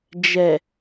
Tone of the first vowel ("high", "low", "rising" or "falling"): low